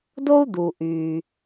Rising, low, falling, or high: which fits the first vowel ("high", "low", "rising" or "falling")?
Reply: high